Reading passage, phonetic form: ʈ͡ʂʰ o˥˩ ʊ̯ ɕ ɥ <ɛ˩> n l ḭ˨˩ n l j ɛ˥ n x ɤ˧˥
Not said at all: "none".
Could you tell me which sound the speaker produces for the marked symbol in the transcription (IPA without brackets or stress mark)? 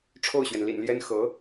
ɛ˩